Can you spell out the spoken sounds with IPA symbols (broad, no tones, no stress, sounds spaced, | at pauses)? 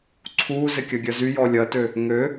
ǀʰ uː z ɪ kʲ ɐ ɡʲ œ z y j ɔ lʲ ɐ t ø | ŋ ø